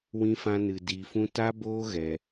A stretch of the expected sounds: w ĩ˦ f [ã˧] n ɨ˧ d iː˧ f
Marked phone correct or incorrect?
incorrect